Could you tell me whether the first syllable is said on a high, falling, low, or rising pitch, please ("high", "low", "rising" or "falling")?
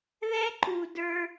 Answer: high